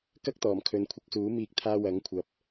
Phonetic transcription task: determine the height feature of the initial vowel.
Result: low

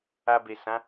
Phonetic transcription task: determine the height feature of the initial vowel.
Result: low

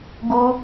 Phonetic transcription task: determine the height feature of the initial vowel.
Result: mid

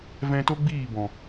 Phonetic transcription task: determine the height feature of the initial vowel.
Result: mid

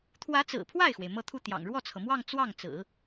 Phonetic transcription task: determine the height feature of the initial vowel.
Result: low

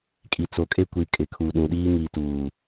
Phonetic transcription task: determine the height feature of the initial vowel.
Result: high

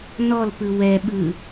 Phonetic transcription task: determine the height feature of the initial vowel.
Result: mid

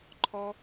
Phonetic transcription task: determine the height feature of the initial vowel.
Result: mid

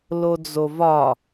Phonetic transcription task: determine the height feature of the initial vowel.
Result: mid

